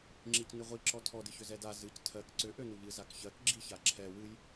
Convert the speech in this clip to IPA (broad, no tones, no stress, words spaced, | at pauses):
ŋ͡ǁicnɨʁʷiǁɔ tʰɔdɨçʏ zɛda zɨc tʰɜk ǀʏ ʔønuʎɨ zakçɜk ɡ͡ǁiçaǁʰɛ wɨj